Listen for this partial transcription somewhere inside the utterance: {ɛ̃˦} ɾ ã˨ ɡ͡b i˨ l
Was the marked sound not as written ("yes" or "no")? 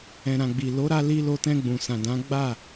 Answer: yes